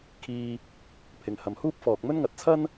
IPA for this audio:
kʰ iː˧ | pʰ ɪ˨ ŋ h ɐ˨˧ m h uː˥ p̚ f ɔː˨ k̚ m ɵ˥ n ŋ ɐ˨ t̚ t͡sʰ ɐ˥ n

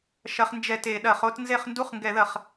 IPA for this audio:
ʃ ɐ˦˥ χ n d͡ʒ ɛ˥˨ t e˧˩˧ ɗ ɐ˧˩˧ χ o˦˥ t n z e˥˨ χ n d u˦˥ χ ŋ ɡ ɛ˧˩˧ ð ɐ˧˩˧ χ

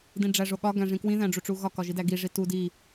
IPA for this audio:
d ĩ ɖ͡ʐ æ ʐ o ɠ ɒ ɡ æ̃ ʐ ĩ k w ĩ ð æ̃ ɖ͡ʐ u ʈ͡ʂ u ɣ ɒ k ɒ ʒ i d æ ɡ i ʐ i t u d i

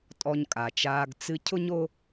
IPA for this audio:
tʼ ɔ˧ ɲ kʼ a˨ t͡ʃ aː˧ ɡ t͡s ɨ˧ cʰ ʊ˦ ɲ o˦

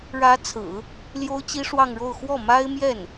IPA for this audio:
ɻ ä˧˥ t͡sʰ ɹ̩˨˩˦ | l j o˥ ʊ̯ t͡ɕ i˥ ʂ w ɑ˥˧ ŋ ɻ o˥˧ ʊ̯ x w ɔ˥˩ m a˥ ɪ̯ m j ɛ˥˩ n

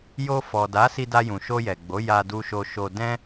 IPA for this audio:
j o˧ f ɔ˨ d a˨˦ s i˧ d a˧ j ũ˨ ʃ o˧ j ɛ˨ ɡ͡b o˨˦ j a˧ d u˧ ʃ o˧ ʃ o˧ d ɛ̃˦

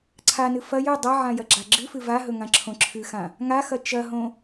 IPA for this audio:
ǀʰ a n ɨ f ɐ j ɵ dˤ ɐ ʕ ã j ɐ ɡ͡ǁ a ɡ͡ǁ ɨ f ɨ v a ɦ ɵ ŋ ã ǁʰ õ ǁʰ ɨ x ã | ŋ a x ɐ t͡ʃ ɐ ɦ õ

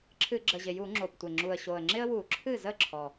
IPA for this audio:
ǁʰ ɨ˧˩˧ ɡ͡ǁ ə˨˩ ʑ ɪ˨˩ j u˧˩˧ ŋ͡ǁ o˨˩ p tʷ ɪ˨˩ ŋ͡ǁ u˨˩ ə̯ ɕ o˨˩ ə̯ ŋ͡ǁ ɪ˦ ə̯ w u˧˩˧ ǁʰ ɨ˥˩ z ə˥˩ ǁʰ ɔ˨˩

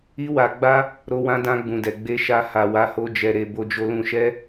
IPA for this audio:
i˦ w a˧ ɡ͡b a˦ | ɾ o˧ w ã˧ d ã˧ ɡ͡b ũ˨ d ɛ˨ ɡ͡b e˧ ʃ a˧ h a˨ w a˨˦ h o˧ d͡ʒ ɛ˨ ɾ e˨ b o˨ d͡ʒ o˨ l ũ˨ ʃ ɛ˧

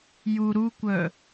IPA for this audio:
j u ɾ u kʷ œ

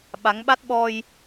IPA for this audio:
ɓ a˨˦ ŋ ɓ a˦˥ t̚ ɓ ɔ˧ j

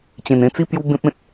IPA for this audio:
t͡ɕ ẽ˨˩ n ẽ˥˧ t͡s i˥˧ p j u˦ b ẽ˦ p̚ ẽ˨ t̚

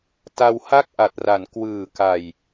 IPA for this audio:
t a˧ w h a˥˩ k̚ ʔ a˨˩ t̚ r a˩˦ n k w ɯː˨˩ k a˨˩ j

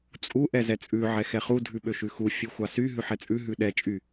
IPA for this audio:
t͡sʼ u ʔ ɛ z ɛ t͡sʼ ʉ ʕ ɛ x ɛ χ u dʱ ʉ ɓ ø ʃ ʉ x u fʲ u xʷ ɑ s y ɦ ʉ ħ ɛ t͡sʼ ʉ ɦ ʉ ɗ ɛ t͡ʃʼ y

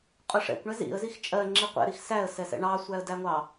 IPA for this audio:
qʼ ʊ ʂ ɛ̰ kʷ ɳ ɛ z ḭ ə̯ z i x t͡ʃʼ ɜ ŋ͡ǁ i qʷ ɛ̰ ɾ i x s æ ə̯ s ɛ s ɛ̰ ɳ ɑ sʷ æ ə̯ d æ ŋʷ ɑ

